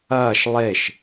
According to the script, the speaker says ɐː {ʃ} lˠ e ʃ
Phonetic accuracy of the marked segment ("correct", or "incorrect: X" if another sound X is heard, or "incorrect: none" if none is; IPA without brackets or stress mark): correct